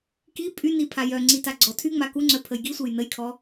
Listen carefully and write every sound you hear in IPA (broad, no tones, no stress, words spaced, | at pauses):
ki pʼyni pʰajœŋ͡ǀi taɡ͡ǀɔtʰyŋ͡ma kuŋ͡ǀœ pʰəjɡisʷej nəjkʰɔ